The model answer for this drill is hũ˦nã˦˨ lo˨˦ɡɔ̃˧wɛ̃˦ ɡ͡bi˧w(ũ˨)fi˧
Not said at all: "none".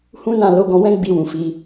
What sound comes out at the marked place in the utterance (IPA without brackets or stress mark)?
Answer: ũ˨